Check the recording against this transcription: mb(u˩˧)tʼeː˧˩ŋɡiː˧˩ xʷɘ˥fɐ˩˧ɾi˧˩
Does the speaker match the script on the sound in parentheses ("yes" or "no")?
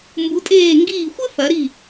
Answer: yes